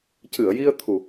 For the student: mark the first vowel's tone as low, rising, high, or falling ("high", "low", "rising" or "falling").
low